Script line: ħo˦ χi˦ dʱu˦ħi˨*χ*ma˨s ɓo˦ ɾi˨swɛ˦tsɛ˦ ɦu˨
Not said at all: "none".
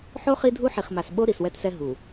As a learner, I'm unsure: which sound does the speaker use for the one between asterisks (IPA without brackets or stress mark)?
χ